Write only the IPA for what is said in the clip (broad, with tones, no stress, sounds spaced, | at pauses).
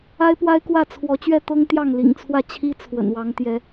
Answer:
a˦ ɪ̯ p w a˦ ɪ̯ k w ä˥˨ t͡sʰ w ɔ˨˦ t͡ɕ ɥ ɛ˥˨ t̪ ɤ˦ ŋ t̪ j ɑ˥˨ ŋ l ḭ˨˩ ŋ t͡sʰ w ä˥˨ t͡ɕʰ i˦ t͡sʰ w ə̰˨˩ n w ɑ˨˦ ŋ t̪ j ɛ˨˦